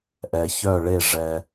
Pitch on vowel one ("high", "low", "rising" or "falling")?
low